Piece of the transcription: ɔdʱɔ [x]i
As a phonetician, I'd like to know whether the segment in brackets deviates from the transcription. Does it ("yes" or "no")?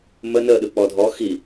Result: no